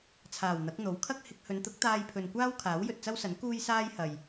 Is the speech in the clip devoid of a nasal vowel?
yes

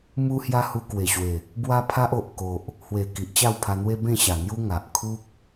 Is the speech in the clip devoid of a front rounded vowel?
yes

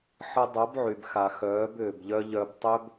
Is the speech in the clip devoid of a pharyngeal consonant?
no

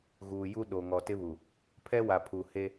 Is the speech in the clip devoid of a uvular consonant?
yes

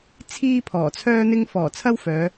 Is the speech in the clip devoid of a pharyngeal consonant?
yes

